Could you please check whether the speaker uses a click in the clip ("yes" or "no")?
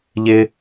no